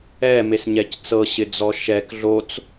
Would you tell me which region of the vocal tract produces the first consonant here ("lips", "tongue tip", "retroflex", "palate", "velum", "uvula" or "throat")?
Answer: lips